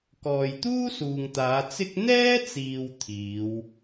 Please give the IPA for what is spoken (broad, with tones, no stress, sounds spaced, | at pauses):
k ɔː˨ j t̪ uː˥ s uː˨ ŋ t̪ aː˨˧ t͡s ɪ˥ k̚ n̪ ɛː˥ t͡s iː˨ w t̪ʰ iː˨˧ w